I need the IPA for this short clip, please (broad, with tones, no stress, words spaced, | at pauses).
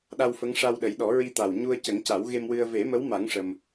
ɗa˧wfə˧˥ŋ ʂa˧w ɗə˨˩˦jɗɔ˨˩˦ ɹi˧t̪a˨˩w ɲu˧ə̯ cə˨˩˦ŋca˨˩˦wɣe˧mwɨ˧ə̯ ve˨˩˦mə˧˥wma˨˩˦ŋ ʂə˧m